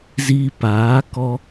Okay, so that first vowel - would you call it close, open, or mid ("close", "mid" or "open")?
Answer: close